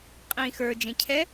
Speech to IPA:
qʼĩːxə˞ d͡ʒẽcʰɛ

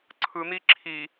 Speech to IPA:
ǀʰɯn̪i ǁʰi

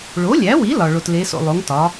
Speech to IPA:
ɭo˩˥lʲæ˩˥wi˩˥ lɒ˩ ɭo˩tle˩˥so̰˩ lˠo˩˥ŋtɒ˩˥

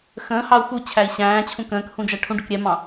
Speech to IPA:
xə̃ː hɑu̯xu t͡ɕʰæi̯ɕæ̃ːt͡ɕʰũ kə̃ːkhũ d͡ʒæʈʰũɖʊk ɾʲɛmɑ̃

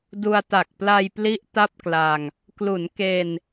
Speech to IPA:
du˧a̯ta˨˩k̚ pla˧jpli˦˥ʔ ta˥˩p̚kla˧ŋ | klu˩˦nke˧n

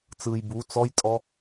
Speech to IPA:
t͡sɯj bu t͡sɔjtʼɔ

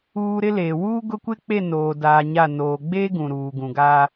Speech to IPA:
uː˨ ɾɪ˦leː˨ wuː˦ɡʊ˦kʷɪ˦k͡pe˦˨ noː˨daː˨ ɲa˦˨ noː˨ ɡ͡beː˦ ɡũ˨ɾuː˨ɡũ˨ɡaː˦

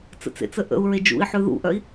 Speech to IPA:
t͡sə̰t͡sḛt͡sə ʔə̰u̯ɹe d͡ʒṵi̯ħʉ ðṵʔœi̯

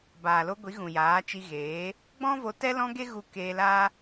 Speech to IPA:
baː˨lo˧ ɡʷi˨˦ɣũ˨jaː˨˦ t͡ʃi˧ɣeː˨˦ | ɡ͡bɔ̃˦vo˧ tɛ˦lɔ̃˦ɡe˦ɣu˧ keː˧laː˦

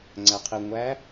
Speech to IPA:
ŋ͡ǀæqʰi ŋʷæ

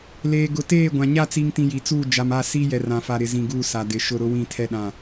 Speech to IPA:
leː˨ ɡʊ˨teː˦˨ɡʷã˨ ɲa˦˨t͡si˨ŋtĩ˨ ji˨t͡suː˦˨ d͡ʒa˨ma˦˨siː˦ jɛ˨rã˨fa˨ ɾɪ˨zĩ˨ɡuː˦˨ sa˨dɪ˨ ʃʊ˦˨ɾʊ˦ wĩ˦˨tʰɛ˦ɗã˦˨

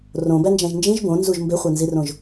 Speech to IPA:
rõbænd͡ʒæ̃ʒ nd͡ʒĩʒ bõnzuʒ mbeχʷænzirõʒ

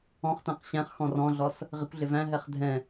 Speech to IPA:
ɔ̃χtæ̃q ɕæ̃χxɔ̃ rɔ̃ɮɔs | ʁɪkʷɮɪ væ̃ɦɛχ dʱɛ̃

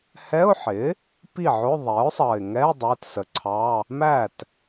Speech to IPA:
hɛ˧˥˧ʊ̯ħɪ˩˥ | pi˥˩ʕʊ˧˥˧ ðˤɛ˩˥ʊ̯sˤʌ˨˩ɪ̯ ŋɛ˧˥˧ dˤə˞˧˥˧tsə˨˩ǀʰɑ˧˥˧ | mæ˥˩t

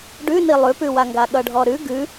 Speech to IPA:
ɖʉni lˠʉpʉwaŋɡa ɠʌɖʱɔɾʉ ɡʉ

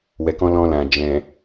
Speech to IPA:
wɛ˨kɔ̃˧ lɔ̃˧lã˨ d͡ʒɛ̃˨

